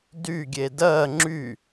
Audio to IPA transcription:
d y ɡʲ e d ɜ ŋ͡ǁ y

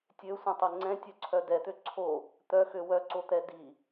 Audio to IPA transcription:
tʲ ø sʷ ɛ̃ tˤ ɛ ŋ͡ǀ ɛ̃ tʲ œ ǀʰ œ d ɛ t̪ ø ǀʰ o | t̪ œ x ø w œ ǀ o t̪ ɛ d i

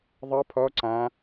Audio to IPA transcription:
ðˤ ʌ pʰ ɔ ǀ ã

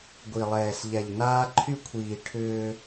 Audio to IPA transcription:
ɡʷ i˨ lˠ ɛː˨ s ʎ ɛ˨ ʎ n aː˦ ǃʰ y˦ kʷʰ iː˨ ʈʰ ʏː˦

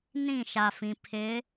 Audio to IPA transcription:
n ĩ˦˨ ʃ a˨ f ĩ˨ pʰ ɪ˨˦

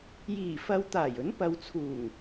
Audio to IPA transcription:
j iː˨˩ f ɐ˨˧ w t̪ aː˨˩ j ɵ˨˥ n p ɐ˨˧ w t͡sʰ uː˨˩ ŋ

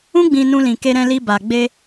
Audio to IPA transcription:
ũ˦ ɡ͡b ĩ˧ n ũ˧ l ĩ˨ k e˧ ɾ ɛ̃˧ l i˧ b a˨ ɡ͡b e˧

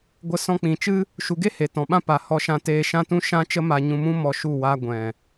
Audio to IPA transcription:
ɡʷ ə˧ s ɔ̃˧ k͡p ĩ˨ t͡ʃ ɨ˦ | ʃ u˨ ɡ e˦ h e˨ t ɔ̃˨ ɓ ã˦ p a˨ h ɔ˧ ʃ ã˧ t eː˧ ʃ ã˦ t ũ˦ ʃ ã˦ t͡ʃ ə˦ m a˧ ɲ ũ˧ m ũ˦ m ɔ˧ ʃ u˦˨ w a˦ ɡʷ ɛ̃˨

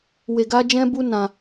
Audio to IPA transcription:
w e˧ ɡ a˦ d͡ʒ ɛ̃˦ b u˦ n ã˧

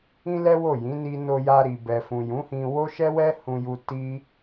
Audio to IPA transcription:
ĩ˦ l ɛ˦ w o˦˨ j ĩ˨˦ n i˧ n o˧ j a˧ ɾ i˨ b ɛ˨ f ũ˨ j ũ˨˦ h ĩ˧ w o˦ ʃ ɛ˦ w ɛ˦ h ũ˧ j u˧ t i˦

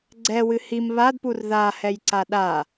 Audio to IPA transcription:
ɡ͡ǀ ɛ w ɨ h i m β a d p u r ð a h ɛ j ǀ a ɗ a

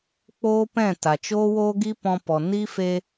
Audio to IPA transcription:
k͡p oː˦ p ɛ̃˦˨ t a˨ t͡ʃ oː˦ w oː˦ ɡ i˦ p ɔ̃˧ p ɔ˨ n i˦ f e˧

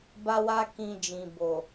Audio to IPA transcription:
b a˦ w a˦ k ĩ˧ d͡ʒ ĩ˨ b o˨

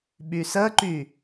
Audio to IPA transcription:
ɓ y s ə ǃ y

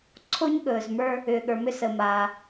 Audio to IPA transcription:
ǀʰ o˥ ɲ ɠ ɵː˩ z m ə˞˦ | ʏː˩ ɠ ə˞˩ m ʏ˦ s ə˩ m aː˩

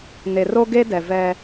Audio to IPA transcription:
n e˨ r o˦ ɡ e˦ d ɛ˨ v ɛ˦

